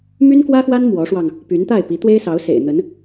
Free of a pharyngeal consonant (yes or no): yes